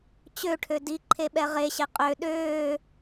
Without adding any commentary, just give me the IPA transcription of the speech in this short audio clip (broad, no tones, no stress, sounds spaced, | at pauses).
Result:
t͡ɕ ø ʈʰ ø d i ǃʰ e ɓ ɛ ʁ e ɕ e qʼ ø ɗ øː